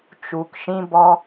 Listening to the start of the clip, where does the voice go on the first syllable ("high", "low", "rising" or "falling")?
low